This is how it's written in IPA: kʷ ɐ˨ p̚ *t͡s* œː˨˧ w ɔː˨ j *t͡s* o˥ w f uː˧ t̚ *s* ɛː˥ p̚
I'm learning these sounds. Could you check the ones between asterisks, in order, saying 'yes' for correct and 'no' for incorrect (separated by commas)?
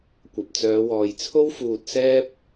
yes, no, yes